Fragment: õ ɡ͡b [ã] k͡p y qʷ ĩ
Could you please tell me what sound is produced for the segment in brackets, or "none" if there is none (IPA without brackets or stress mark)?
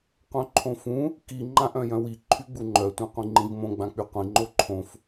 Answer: ã